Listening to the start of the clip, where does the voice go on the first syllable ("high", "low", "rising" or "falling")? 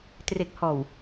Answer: low